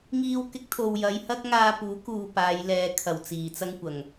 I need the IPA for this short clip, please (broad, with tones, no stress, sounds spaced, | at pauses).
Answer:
ŋ iː˧ w k ɪ˧ k̚ t̪ʰ o˨ w j ɐ˨˧ j h ɐ˥ k̚ ŋ aː˧ p uː˨˥ k uː˧ p aː˨˧ j l ɛː˨ kʰ ɐ˨˩ w t͡s iː˨˩ t͡s ɐ˥ ŋ kʷ ɐ˨˩ ŋ